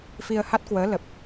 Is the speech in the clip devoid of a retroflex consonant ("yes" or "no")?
yes